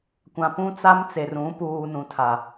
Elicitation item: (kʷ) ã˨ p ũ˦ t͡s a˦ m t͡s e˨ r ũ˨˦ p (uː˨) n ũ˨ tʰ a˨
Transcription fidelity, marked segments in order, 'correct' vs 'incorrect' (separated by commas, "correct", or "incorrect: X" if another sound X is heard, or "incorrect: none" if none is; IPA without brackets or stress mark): correct, correct